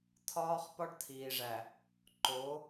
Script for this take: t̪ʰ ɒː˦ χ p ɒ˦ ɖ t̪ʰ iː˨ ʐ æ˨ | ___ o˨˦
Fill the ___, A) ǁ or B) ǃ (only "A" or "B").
B